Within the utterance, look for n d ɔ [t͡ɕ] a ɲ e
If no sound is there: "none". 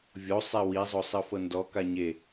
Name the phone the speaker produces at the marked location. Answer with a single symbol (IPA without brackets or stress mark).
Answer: k